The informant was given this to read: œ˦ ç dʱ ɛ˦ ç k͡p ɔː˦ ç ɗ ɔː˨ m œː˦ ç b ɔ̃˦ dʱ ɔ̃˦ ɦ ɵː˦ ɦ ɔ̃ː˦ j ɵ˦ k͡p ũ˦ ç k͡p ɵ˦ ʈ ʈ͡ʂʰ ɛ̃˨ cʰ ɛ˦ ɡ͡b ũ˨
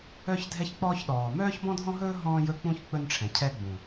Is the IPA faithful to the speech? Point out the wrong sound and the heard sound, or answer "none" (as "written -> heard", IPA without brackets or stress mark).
ʈ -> n